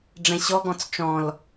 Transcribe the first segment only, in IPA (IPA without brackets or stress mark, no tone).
ɖ͡ʐ